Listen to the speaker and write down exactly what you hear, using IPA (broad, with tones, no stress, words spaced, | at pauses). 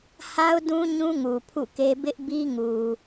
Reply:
ha˦ʊ̯dũ˦ ɲũ˦ŋu˨ pʰṵ˦˨ke˦ bɪ˦ʔbi˦ŋu˨